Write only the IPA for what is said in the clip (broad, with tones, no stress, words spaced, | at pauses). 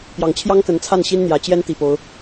pjɑ˨˩ŋt͡ɕʰjɑ˥ŋ kə˧˥nt͡sʰa˥˩nɕi˥nn̪jä˨˩ t͡ɕjɛ˥nt̪i˨˩po˦ʊ̯